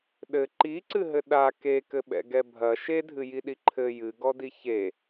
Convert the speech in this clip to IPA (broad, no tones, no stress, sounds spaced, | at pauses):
ɗ ɘ ǃ i ǀ ɨ ɦ ɘ ɗ a k e k ɘ ɓ ɛ̰ ɡ ɛ bʱ ɐ ʃ e dʱ ɨ j i ɗ i ǃʰ ɘ j ɨ ɡ ɔ d i ç e